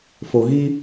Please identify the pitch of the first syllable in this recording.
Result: low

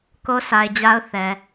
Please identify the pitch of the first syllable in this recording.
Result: high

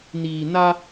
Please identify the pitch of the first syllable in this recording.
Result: low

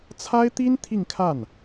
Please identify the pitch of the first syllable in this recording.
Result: high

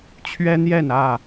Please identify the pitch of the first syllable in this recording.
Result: high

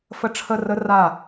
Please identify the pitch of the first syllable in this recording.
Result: high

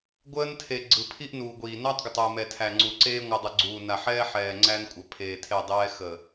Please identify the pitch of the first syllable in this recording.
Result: high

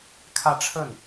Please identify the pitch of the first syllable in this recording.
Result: falling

